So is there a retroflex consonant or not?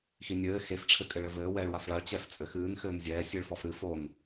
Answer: yes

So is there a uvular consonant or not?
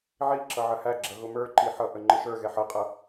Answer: yes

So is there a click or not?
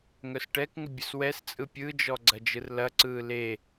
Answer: yes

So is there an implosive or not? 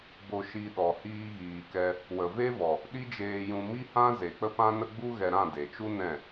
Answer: yes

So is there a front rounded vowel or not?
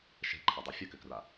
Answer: yes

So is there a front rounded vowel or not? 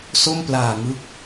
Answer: no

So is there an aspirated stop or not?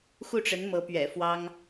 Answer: no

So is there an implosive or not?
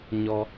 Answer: no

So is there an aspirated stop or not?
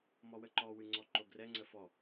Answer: no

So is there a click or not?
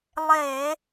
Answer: no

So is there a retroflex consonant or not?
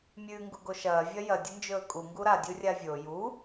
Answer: no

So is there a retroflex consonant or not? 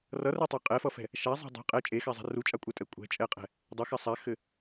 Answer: no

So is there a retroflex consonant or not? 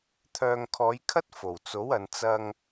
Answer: no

